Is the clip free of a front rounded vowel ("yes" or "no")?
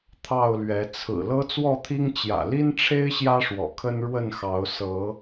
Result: yes